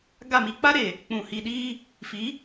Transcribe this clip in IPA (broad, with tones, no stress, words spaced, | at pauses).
ɡa˦˨mi˦ k͡pa˦ɾe˨ | k͡pũ˨hi˨ɗiː˦ | fi˨˦